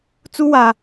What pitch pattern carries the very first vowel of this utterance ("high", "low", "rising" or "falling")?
high